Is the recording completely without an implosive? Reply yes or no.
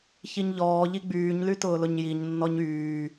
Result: yes